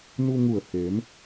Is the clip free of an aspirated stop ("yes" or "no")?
yes